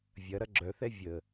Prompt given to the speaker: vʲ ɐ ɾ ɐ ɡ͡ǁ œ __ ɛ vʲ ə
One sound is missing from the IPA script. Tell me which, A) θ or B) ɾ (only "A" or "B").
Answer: A